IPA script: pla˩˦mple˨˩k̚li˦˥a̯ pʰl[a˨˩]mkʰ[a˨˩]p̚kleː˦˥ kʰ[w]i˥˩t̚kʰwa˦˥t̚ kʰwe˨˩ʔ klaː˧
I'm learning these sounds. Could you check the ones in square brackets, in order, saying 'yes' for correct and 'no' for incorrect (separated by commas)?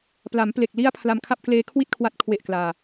no, no, yes